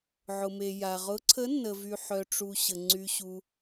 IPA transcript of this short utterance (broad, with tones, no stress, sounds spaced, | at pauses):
ʕ ʊ˨ m e˨ j a˨ ʁ ʊ˧˥ ǀʰ ə˧˥ nː ə˨ v y˨ ħ œ˨ ʈ͡ʂ u˨ ɕ ə˨ ŋ͡ǀ y˨ ɕ u˨